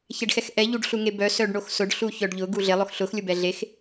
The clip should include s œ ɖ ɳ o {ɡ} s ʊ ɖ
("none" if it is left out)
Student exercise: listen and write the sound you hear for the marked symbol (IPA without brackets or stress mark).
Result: x